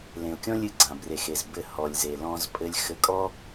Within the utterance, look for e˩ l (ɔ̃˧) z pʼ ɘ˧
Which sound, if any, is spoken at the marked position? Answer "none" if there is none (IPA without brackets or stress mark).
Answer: ɔ̃˧